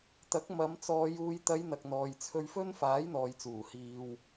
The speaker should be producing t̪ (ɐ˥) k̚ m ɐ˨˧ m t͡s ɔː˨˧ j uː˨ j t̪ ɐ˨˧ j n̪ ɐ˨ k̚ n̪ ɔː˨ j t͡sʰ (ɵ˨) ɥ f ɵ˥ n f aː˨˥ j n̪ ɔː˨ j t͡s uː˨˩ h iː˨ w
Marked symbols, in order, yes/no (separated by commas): no, no